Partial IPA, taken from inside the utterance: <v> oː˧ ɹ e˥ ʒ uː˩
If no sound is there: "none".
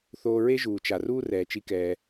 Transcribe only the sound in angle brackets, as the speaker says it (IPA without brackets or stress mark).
θ